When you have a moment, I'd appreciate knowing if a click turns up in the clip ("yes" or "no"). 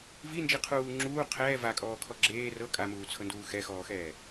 yes